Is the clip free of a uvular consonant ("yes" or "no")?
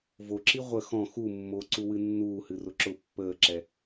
no